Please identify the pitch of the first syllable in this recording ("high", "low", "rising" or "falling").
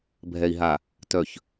low